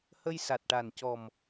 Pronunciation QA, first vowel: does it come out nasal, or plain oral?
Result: oral